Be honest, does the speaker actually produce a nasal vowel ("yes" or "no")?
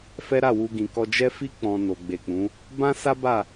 yes